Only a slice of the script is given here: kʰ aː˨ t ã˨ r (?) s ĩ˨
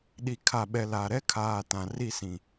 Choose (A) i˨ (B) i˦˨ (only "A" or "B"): B